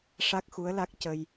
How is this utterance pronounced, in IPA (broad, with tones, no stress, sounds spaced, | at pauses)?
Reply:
ʂ a˦˥ k̚ x u˧˥ ə̯ l a˦˥ k̚ c ə˧ j